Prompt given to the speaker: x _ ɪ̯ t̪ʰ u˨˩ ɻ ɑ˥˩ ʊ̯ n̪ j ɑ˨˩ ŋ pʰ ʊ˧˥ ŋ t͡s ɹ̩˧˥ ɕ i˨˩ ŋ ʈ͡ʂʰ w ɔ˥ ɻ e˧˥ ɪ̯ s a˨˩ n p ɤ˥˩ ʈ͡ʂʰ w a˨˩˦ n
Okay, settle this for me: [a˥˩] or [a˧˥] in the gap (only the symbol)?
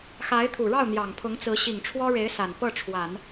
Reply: a˧˥